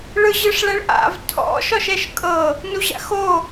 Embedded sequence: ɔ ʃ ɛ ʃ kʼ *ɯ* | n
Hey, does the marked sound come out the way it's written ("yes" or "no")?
no